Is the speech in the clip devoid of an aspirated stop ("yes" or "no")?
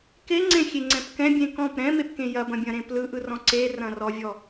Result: yes